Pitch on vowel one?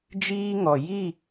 high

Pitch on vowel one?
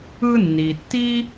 high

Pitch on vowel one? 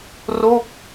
falling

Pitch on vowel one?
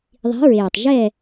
rising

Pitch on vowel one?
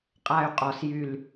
high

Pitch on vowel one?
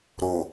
low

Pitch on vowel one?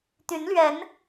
rising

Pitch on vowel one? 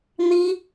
high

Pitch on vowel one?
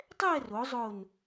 falling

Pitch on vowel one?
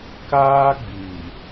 high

